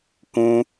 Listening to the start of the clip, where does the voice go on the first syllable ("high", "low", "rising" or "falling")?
high